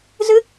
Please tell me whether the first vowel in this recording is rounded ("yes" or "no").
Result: no